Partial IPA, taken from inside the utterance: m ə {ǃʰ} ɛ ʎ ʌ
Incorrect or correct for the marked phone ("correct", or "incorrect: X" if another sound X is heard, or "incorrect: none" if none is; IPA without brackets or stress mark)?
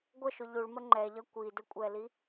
incorrect: ŋ͡ǃ